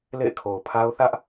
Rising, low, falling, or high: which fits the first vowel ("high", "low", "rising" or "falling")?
falling